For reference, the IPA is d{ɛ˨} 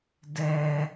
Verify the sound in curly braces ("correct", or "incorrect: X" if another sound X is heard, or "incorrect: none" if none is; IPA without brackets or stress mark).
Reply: correct